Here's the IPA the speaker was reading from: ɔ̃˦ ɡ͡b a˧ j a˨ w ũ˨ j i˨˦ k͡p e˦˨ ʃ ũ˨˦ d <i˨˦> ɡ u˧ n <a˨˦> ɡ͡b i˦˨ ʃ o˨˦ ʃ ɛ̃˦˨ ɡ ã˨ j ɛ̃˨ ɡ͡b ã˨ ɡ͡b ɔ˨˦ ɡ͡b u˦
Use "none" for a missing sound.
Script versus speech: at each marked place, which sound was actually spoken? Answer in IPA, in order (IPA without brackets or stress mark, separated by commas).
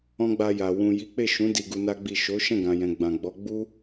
i˧, a˦